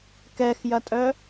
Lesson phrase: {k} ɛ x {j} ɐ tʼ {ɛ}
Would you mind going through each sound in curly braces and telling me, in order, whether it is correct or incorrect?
correct, correct, incorrect: œ

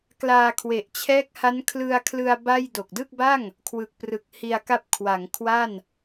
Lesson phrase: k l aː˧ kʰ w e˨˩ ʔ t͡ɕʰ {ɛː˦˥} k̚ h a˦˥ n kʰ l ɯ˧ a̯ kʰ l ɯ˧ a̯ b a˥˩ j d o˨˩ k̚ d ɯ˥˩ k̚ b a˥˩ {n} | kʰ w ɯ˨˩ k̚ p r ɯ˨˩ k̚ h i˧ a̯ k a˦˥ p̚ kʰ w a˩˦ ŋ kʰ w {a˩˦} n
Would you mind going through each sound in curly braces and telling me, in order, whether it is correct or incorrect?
correct, incorrect: ŋ, incorrect: a˥˩

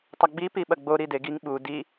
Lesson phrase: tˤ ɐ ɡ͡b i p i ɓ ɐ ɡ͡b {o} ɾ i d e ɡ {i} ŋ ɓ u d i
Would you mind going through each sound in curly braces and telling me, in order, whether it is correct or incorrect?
correct, correct

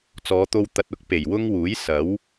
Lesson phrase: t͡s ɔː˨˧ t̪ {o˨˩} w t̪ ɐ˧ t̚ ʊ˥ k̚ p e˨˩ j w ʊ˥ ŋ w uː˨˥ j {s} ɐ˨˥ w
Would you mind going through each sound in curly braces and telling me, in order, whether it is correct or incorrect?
incorrect: o˧, correct

